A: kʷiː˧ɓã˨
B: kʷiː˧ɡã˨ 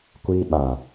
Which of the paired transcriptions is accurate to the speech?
A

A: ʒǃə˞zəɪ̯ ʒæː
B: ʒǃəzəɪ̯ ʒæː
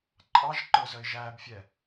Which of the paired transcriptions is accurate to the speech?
A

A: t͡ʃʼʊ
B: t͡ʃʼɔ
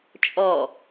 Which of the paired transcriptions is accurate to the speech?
B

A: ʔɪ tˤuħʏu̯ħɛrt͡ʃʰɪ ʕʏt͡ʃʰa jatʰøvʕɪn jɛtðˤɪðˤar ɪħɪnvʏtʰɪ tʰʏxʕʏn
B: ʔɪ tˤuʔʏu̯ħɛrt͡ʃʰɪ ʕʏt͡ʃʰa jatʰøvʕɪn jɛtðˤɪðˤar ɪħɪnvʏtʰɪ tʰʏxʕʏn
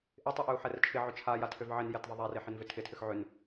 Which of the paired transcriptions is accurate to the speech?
B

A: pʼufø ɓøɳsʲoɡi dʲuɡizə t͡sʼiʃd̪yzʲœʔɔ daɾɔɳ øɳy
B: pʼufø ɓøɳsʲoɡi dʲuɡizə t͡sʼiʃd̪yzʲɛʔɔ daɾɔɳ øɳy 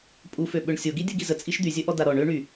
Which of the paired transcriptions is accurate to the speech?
A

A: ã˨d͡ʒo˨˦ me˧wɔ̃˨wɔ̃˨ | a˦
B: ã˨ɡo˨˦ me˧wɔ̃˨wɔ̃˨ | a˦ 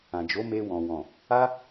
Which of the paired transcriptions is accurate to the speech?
A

